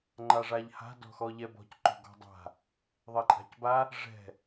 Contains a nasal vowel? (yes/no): no